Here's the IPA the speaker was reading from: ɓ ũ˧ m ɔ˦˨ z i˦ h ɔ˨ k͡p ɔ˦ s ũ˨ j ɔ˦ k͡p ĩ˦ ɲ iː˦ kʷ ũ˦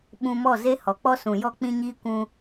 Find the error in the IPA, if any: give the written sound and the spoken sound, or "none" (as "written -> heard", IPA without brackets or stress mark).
i˦ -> e˦